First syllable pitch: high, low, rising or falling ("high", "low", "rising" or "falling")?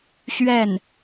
falling